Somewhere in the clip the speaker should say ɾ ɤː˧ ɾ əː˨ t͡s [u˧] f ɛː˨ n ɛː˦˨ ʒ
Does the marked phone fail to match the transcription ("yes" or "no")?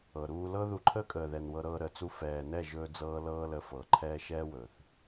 no